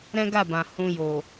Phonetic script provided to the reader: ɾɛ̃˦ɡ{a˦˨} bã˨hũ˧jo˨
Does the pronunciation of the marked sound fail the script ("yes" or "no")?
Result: no